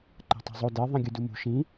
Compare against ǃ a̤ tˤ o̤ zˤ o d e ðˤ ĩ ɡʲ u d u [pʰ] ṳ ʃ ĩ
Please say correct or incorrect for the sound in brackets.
incorrect